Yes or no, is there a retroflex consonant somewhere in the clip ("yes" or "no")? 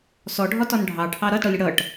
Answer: yes